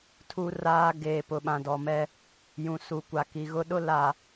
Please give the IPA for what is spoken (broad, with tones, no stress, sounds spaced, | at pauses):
tʰ u˦ r aː˦ ɡ eː˨ p ʊ˨ ɓ ã˨ d ɔ˨ m ɛ˦ | j ũ˨ s u˨ kʷ a˨ k i˨ ɣ ʊ˦ ɗ ʊ˦ l a˨